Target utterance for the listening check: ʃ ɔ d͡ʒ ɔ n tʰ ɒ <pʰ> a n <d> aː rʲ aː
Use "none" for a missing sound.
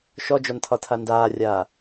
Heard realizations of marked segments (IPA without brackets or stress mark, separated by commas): tʰ, d